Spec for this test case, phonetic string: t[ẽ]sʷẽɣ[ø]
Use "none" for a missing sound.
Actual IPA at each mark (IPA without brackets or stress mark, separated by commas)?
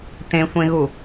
ẽ, u